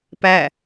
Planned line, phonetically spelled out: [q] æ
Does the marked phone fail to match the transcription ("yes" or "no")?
yes